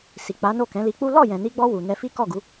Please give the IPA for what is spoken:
s i˨ k͡p a˨˦ n o˦˨ k ɛ̃˨˦ l i˧ k͡p u˦ l ɔ˦˨ j ɛ̃˨ n i˧ ɡ͡b ɔ˧ w u˨ n ɛ˧ f i˦ k ɔ˦˨ ɡ u˨˦

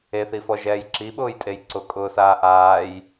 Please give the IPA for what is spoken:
e θ i f ɔ ʒ ɛː j ǁ i ɓ ʊː j tʼ e j ǀ ʊ kʼ ʊː s aː ʔ aː j

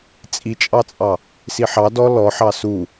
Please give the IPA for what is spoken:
t͡sʼ i t͡ʃʼ ɑ t͡sʼ ɑ | s i ħ ɑ d ɔ l ɔ ħ ɑ s u

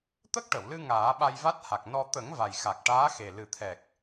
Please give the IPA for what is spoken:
t̪ ə˦˥ k̚ ʈ ə˨˩˨ w l ɨ˧ ŋ aː˨˩˦ ɓ a˧ j v a˦˥ t̚ h a˨˩ k̚ n ɔ˧ t̪ ə˨˩˦ ŋ v a˨˩ j x a˨˩ k̚ ʈ aː˧˥ x e˨˩ l ɨ˨˩ t̪ʰ ɛ˨˩ k̚

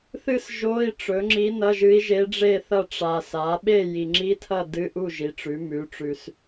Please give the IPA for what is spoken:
θ ɨ˥˨ s ʒ o˧˥˧ i̯ ʈ͡ʂ ɵ˩˥ ŋ͡ǁ i˧˥ n ɐ˧˥˧ ʒ ɨ˧˥ i̯ ʒ e˧˥ ɖ͡ʐ e˥˨ θ ɐ˥˨ ʈ͡ʂ a˨ s a˩˥ ɓ e˥˨ j i˨ ŋ͡ǁ i˧˥˧ tʰ ɐ˥˨ d ɨ˧˥˧ ʔ u˥˨ ʒ i˩˥ ʈ͡ʂ ʉ˩˥ m ʉ˩˥ ʈ͡ʂ ʉ˨ s

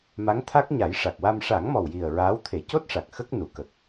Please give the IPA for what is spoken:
m a˧˥ ŋ t̪ʰ a˦˥ k̚ ɲ a˨˩˦ j ʂ a˨˩ k̚ w a˧ m ʂ a˨˩˦ ŋ m ɔ˨˩ w j i˨˩ ə̯ ɹ aː˧˥ w t̪ʰ e˨˩˦ c o˦˥ t̚ ʂ a˨˩ k̚ x ə˦˥ k̚ n u˨˩˨ k ə˨˩ k̚

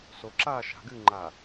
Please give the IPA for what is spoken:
s o ǁ aː ʃ a̤ ɡ ɨː ŋ͡ǃ aː

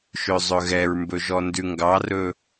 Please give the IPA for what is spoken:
ʃ ø zˤ ɵ ɣ ɛ ɹ m b ɵ ʒ ɔ n d ʉ ŋ ɡ ɑ r ɵ

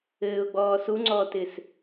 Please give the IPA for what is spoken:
ɘː ʊ̯ ɡ͡b ɔː s u ŋ͡ǀ ɔː t ɪː s

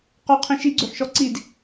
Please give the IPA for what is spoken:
q ɔ qʰ ĩ ʃ i ɡ͡ǀ ø ħ ʃ ɔ ǀ i d

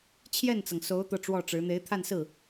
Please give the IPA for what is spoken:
t͡ɕʰ j ɛ˥˩ n t͡s ɤ˩ ŋ s o˧˥ ʊ̯ t̪ ɤ˥˧ ʈ͡ʂ w ɔ˥˩ ʈ͡ʂ ɻ̩˧˥ n̪ e˧˥ ɪ̯ t̪ʰ a˥˧ n s ɹ̩˥˩

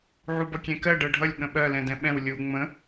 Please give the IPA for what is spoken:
ʕ u b ʌ kʲ ɛ̃ k ɜ ɖ ɜ ɖʱ ʌ lʲ ɠ ə̃ ɓ ɜ l ɛ̃ d ɛ̃ ɓ ɛ̃ w lʲ u ŋ͡m ə̃

